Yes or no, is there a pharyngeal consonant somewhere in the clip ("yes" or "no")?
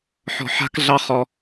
yes